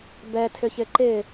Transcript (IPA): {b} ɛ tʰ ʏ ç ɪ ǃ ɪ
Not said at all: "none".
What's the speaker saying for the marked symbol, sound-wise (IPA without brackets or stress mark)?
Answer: b